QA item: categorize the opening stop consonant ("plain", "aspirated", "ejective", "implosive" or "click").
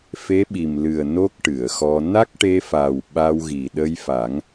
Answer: implosive